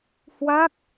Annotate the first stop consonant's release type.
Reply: plain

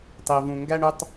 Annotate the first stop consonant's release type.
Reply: plain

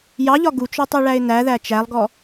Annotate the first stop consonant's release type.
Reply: plain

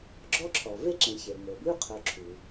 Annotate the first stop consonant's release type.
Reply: click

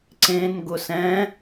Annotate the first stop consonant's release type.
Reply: click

